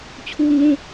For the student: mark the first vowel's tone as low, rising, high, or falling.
high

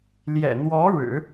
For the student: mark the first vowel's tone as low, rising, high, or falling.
low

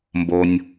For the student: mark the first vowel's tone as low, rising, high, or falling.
low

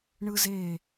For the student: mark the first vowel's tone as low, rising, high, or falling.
high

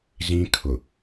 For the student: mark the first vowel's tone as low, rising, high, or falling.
high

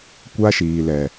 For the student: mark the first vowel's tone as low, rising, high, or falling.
high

